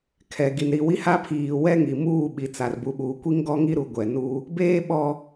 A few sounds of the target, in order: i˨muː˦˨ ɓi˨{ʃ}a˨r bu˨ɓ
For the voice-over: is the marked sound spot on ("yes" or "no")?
no